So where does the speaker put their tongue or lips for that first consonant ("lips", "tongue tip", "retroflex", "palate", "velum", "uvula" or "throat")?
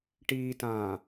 retroflex